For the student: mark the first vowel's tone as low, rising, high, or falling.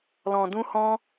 low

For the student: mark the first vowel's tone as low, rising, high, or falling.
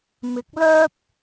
rising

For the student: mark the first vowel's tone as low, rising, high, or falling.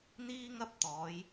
high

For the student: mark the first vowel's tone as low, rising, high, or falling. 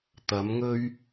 rising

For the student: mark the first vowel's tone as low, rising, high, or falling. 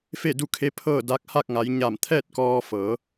falling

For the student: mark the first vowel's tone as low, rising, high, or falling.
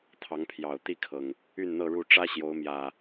rising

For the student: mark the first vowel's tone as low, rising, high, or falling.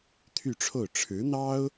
falling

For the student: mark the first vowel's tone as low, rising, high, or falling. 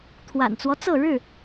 low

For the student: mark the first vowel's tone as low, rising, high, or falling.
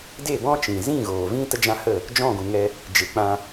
falling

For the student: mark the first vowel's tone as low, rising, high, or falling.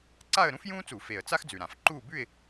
falling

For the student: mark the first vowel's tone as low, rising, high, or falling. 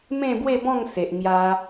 falling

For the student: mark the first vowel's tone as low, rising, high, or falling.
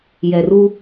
low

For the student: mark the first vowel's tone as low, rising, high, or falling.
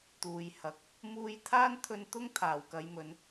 low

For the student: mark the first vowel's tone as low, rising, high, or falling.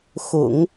low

